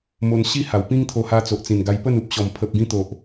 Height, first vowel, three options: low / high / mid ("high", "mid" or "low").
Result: mid